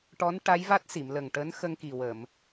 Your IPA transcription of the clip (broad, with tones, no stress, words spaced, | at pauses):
ʈɔ˧˥nʈa˧˥jva˦˥t̚ si˨˩˨mlə˨˩ŋʈəː˧˥n xə˧ŋki˨˩wə˨˩˨m